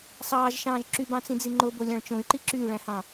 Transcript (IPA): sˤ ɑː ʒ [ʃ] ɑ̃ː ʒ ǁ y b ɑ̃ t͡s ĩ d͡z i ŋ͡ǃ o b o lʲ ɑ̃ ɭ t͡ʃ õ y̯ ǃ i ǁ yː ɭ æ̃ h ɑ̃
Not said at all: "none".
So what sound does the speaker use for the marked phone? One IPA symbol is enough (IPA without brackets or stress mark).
ʃ